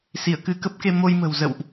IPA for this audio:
s i˧˩ ə̯ k ɨ˧ k ə˦˥ p̚ k e˧ m o˧ j m ə̤˨˩ w z ə̰˧˨ w ʔ

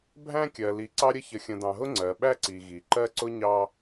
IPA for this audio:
bʱ æ̃˦ kʲ ɜ˨ l i˨˦ ǀ ɑ˦ ɾʲ ə˦ ç ə˨ xʲ ə̃˨ d ɑ̃˨ ɦ ʊ˦ ŋ͡ǀ ɜ˨ ɓ æ˦ ǀ i˨ ɣ i˨ ǃ ɜ˦ ǀ ʊ˦ ɲ ɑ˦

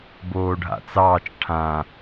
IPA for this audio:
b oː ɖʱ a̰ t͡s ɑː t͡ʃ ʈʰ ã

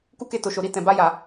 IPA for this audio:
k u˦ k e˧ t o˨ ʃ o˨ ɾ i˧ t ɛ̃˨ b a˧ j a˨

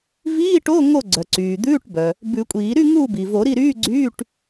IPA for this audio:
v iː˧˥˧ ʈ o˧˥˧ ŋ o˥˨ ɡ͡ǀ œ˩ ǀ yː˩ d̪ ʉː˧˥˧ ʈ b œ˩ | b ʉ˨˩˦ kʷʼ iː˨˩˦ ɾ y˥˨ ŋ u˥˨ b i˩ v o˨˩˦ ɾ i˥˨ ɾ yː˧˥˧ ɡ͡ǀ yː˧˥˧ ʈ

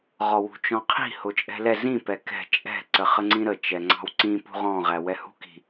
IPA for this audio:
ʁ ɔ w ṳ t͡ʃ ɔ̃ qʰ i̤ h ʊ t͡ʃʼ ɛ̤ l ɛ z ĩ p ɛ k ɛ̤ t͡ʃʼ ɛ̤ ǀ ə χ ə ŋ͡ǀ ĩ ɾ ə t͡ʃ ɛ ŋ͡ǀ ɑ̤ w ǀ ĩ p ṳ ʁ ɔ̃ ʁ æ w ɛ h ṳ k i̤

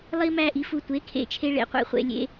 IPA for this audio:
lˠ i˦ m æ˦˨ ʔ i˩˥ f u˨ tʷ e˩˥ kʰ ḛ˦˨ t͡ʃʰ e˦ ɭ ḛ˨ qʷ ḛ˦˨ χʷ ḛ˨ lʲ ḛ˦

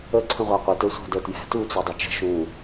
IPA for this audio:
ə ǀʰ ə̃ ʁʷ ɑ qʷ ə t ə˞ sʷ æ̤ d ə t j æ̤ t u t͡s u dˤ u t͡ʃ ə̤ ʃ ũ

